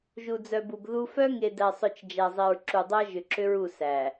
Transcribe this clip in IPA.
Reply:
ʒ u˨ d͡z œ˨ b u˨ b ð u˦ f œ˦ ŋ e˨ d æ˨ sˤ œ˨ t͡ʃ d͡ʒ æ˨ zˤ e˨ ɹ ǁ u˨ dˤ æ˦ ʒ ʏ˨ ǁ ʏ˦ ɹ u˦˨ s æ˨

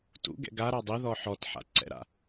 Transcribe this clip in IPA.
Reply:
t ṵ ɡ ɛ̰ ɡ a ɾ ɑ dˤ i ð ɔ ħ ɔ t ħ a̰ ǀ ɛ̰ ɾ a̰

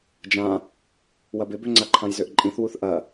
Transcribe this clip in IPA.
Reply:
d͡ʒ ã | w ɐ b ɪ b ø ŋ͡ǀ a ǃʰ ã j z ø ʔ ǃʼ ĩ θ w u θ ʔ ɐ

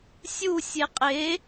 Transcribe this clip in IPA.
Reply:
sʲ u sʲ e qʼ e

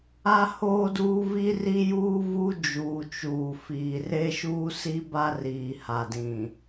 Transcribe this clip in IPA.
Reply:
a˦ h oː˦ d uː˦ v i˦ r i˦ j uː˦ v u˦ d͡ʒ uː˨ t͡ʃ uː˨ f iː˨ r e˦ ʃ uː˦ s i˦ b a˦ r iː˨ h a˨ d ĩ˨

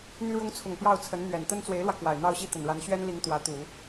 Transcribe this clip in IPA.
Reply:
n̪ y˥ ɻ ʊ˥ ŋ t͡sʰ ʊ˨˩ ŋ p j ɑ˥˩ ʊ̯ t͡sʰ ə˧˥ n n̪ ɥ ɛ˨˩ n t̪ ə˥ n t͡s w e˧˥ ɪ̯ l w ä˧ k w a˨˩ ɪ̯ n̪ ɑ˥ ʊ̯ ɕ i˥˩ t̪ ə˨˩ n ɻ a˧˥ n ɕ ɥ ɛ˥ n l i˧˥ ŋ t̪ w ä˧˥ t̪ u˨˩˦

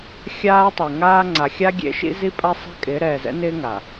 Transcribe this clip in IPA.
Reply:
xʲ aː˦ tˤ e˨ ŋ aː˦ ŋ͡ǀ a˨ xʲ a˦ ɡʲ ḛ˦ ʃ ḭ˦ z i˦ pʼ a˦ sˤ ɛ̤˦ kʼ ɪː˨˦ ɾ ɛː˨ z ɛ̰˦ n ɪː˦ ŋ a˨

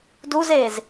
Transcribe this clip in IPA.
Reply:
d u z eː z

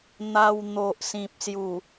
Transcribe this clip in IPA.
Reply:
n̪ a˧ w n̪ o˨ ʔ s ĩ˨ p̚ s j u˨˩

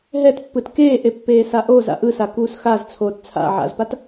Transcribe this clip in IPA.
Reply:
ɦ ɛ t pː ɯ t k eː ʔ e pː eː s a ʔ oː z a̰ ʔ ɯ s a k uː s x a z t͡sʰ oː t t͡sʰ a̰ ʕ a̰ z p a t

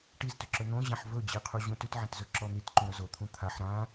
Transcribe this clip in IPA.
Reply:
ʈ i z t ʏ ǁ ɵ n̪ õ ʑ ã ħ v ɵ d͡ʑ i qʰ u ʑ ũ t ʉ t ʕ ã t z ɵ ǁ ɔ n̪ i t ǃ ũ ɾ ɵ z o t̪ʰ ũ t̪ʰ a ħ ɾ ã

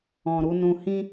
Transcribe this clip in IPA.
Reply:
ɔ̃˨ ɾ u˧ n ũ˨ h ĩ˧

